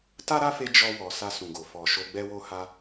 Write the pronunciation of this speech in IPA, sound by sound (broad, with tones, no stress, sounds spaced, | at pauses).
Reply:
t a˦ ɾ a˦ f e˧ d͡ʒ ɔ˧ w ɔ˨ s a˧ s ũ˨ ɡ o˨ f ɔ˨ ʃ o˧ ɡ͡b ɛ˦ w o˦ h a˧